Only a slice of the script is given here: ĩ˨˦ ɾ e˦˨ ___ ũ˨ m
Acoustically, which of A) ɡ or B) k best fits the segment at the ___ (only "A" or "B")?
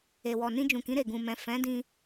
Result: A